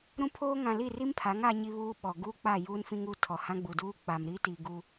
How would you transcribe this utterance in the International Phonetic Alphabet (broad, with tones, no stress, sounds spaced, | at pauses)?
ɾ ũ˦ pʰ oː˦ ŋ ã˨ l i˦˨ r i˦ m pʰ a˨˦ ŋ a˦ ɲ i˦ β uː˦ ɓ ɔ˨ ɡ u˦ k͡p a˦˨ j uː˦ n f ĩ˦ ŋ u˦ tʰ ɔ˨ h ã˦ ɡ͡b u˨ d uː˦ k͡p a˨ m ɾ i˦ t i˨ ɡ u˦